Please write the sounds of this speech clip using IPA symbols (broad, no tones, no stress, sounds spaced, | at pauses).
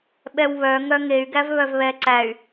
ɓ ɛ w β œ ŋ œ ŋ e y̯ ɡ æ v β œ v β ɛ ǀ æ y̯